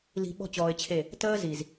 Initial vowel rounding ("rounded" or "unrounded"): unrounded